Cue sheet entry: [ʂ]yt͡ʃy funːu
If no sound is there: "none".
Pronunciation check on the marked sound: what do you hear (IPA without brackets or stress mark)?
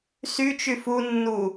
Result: s